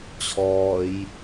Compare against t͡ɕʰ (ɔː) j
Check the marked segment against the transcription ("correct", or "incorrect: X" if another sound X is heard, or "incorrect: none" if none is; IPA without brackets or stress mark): correct